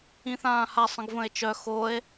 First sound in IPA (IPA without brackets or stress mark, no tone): ĩ